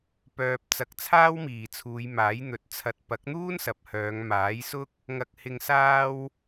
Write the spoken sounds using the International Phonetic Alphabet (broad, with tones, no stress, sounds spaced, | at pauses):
p œː˨ p̚ t͡s ɐ˨˥ k̚ t͡sʰ aː˥ w m iː˨˩ t͡sʰ uː˨˧ j m aː˨˥ j n̪ ɵ˨˥ t̚ t͡sʰ ɐ˨ t̚ p ɐ˨˥ k̚ n̪ uː˥ n s ɐ˨ p̚ h œː˨˧ ŋ m aː˨˥ j s ʊ˥ k̚ | ŋ ɐ˨ k̚ h ɪ˨ ŋ s aː˧ w